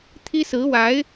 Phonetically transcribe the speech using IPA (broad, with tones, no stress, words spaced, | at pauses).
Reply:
t̪ʰi˥sɹ̩˧˥wa˧˥ɪ̯